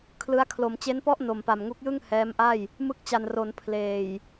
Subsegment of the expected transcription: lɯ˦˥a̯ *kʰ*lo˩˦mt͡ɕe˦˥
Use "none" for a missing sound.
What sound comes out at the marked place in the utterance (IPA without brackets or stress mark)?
kʰ